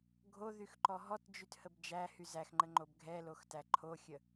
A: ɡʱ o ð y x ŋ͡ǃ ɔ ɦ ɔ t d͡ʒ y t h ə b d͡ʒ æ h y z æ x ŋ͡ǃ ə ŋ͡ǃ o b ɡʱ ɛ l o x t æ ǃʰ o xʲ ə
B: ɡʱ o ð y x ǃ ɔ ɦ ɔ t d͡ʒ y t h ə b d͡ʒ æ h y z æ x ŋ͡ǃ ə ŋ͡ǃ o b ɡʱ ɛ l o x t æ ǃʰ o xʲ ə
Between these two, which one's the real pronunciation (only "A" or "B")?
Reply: B